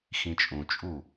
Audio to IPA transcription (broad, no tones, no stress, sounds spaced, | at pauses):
x ĩ t͡ʃʼ ũ t͡ʃʼ u